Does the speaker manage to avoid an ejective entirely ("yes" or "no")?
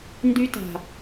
yes